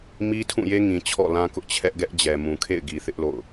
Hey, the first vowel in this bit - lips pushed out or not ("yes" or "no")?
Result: no